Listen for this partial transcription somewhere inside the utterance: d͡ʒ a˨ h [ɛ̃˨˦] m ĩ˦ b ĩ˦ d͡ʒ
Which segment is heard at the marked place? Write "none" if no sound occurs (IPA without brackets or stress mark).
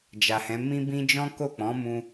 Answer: ɛ̃˨˦